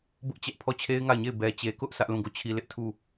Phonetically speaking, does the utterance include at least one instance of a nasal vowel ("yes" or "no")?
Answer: yes